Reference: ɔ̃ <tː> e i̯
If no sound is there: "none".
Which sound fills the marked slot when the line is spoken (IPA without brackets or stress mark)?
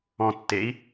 tː